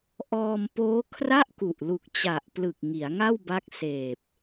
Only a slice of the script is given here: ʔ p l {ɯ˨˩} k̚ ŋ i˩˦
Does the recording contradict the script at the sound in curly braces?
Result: no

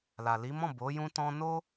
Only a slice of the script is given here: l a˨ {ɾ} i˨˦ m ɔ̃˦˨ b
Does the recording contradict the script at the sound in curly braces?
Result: yes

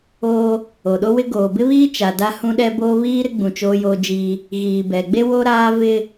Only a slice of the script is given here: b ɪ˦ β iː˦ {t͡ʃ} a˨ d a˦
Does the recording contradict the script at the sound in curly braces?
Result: no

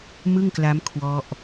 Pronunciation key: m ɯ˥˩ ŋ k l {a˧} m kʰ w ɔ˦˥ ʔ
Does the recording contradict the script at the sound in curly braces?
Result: yes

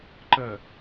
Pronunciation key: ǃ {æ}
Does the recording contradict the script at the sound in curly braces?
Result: yes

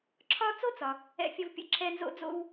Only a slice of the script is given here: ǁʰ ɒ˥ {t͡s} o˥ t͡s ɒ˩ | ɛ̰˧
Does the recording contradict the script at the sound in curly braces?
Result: no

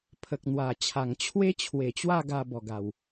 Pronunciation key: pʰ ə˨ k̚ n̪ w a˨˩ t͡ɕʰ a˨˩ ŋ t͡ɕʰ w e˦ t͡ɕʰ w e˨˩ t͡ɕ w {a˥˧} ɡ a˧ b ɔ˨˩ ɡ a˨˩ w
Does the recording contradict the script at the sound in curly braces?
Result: no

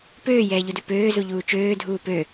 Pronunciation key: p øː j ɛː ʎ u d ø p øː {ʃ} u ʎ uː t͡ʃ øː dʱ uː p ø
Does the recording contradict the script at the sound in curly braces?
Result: yes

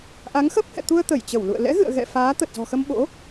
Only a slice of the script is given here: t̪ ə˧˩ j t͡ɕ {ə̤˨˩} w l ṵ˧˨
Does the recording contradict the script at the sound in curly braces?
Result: yes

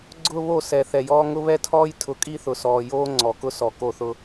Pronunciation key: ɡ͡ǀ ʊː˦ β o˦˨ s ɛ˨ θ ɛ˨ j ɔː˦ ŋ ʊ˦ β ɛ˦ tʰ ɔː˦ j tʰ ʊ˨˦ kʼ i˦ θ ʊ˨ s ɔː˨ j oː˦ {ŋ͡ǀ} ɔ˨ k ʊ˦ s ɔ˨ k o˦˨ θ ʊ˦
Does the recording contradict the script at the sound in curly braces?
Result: no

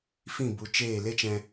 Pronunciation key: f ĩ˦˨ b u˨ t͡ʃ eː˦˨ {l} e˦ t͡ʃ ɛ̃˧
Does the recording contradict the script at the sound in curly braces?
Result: no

